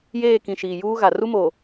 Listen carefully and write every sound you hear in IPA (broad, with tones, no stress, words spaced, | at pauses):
jeː˦˨kĩ˨ ʃiː˨juː˦ ɣa˨ ru˦mo˨